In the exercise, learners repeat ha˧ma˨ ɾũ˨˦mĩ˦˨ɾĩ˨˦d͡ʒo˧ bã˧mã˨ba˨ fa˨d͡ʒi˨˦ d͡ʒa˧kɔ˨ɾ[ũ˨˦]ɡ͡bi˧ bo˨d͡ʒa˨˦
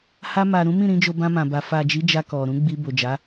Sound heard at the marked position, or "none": ũ˨˦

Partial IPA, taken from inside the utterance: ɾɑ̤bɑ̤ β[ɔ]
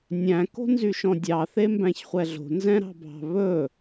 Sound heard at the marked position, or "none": ɵ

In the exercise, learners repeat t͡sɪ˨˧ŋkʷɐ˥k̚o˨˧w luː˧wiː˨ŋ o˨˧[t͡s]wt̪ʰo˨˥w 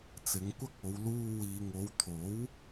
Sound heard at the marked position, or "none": none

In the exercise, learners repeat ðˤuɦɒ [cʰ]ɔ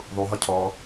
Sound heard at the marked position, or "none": cʰ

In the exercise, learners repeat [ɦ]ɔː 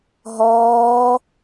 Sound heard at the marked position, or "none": ɦ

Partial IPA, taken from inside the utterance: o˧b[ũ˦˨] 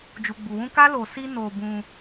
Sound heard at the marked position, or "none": ũ˧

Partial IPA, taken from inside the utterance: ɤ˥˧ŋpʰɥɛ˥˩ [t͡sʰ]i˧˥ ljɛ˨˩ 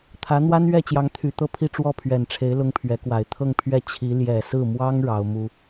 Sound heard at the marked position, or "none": t͡ɕʰ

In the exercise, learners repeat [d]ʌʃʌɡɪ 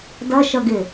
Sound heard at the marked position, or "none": d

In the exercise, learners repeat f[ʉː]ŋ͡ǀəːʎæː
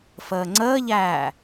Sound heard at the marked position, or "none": əː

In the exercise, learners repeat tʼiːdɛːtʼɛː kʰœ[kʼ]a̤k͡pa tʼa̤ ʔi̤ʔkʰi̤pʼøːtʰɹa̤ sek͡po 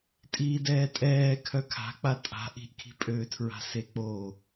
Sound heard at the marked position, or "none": kʰ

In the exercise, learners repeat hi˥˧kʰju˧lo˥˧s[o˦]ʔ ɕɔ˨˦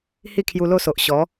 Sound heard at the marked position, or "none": o˨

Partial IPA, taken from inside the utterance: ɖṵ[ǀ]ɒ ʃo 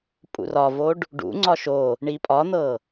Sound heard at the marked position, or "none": ŋ͡ǀ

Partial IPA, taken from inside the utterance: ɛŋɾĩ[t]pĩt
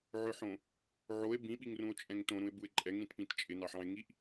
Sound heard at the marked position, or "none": t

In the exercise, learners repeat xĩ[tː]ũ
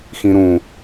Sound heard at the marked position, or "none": ɾ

